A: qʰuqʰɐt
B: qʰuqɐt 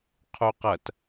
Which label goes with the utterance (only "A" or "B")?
B